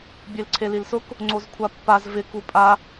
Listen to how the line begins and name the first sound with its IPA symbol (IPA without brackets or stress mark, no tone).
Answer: bʲ